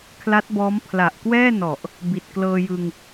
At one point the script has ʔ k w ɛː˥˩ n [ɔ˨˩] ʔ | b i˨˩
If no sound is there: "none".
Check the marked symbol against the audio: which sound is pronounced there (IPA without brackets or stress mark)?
ɔ˨˩